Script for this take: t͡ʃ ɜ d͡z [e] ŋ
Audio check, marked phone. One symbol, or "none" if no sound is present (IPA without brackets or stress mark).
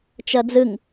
ɨ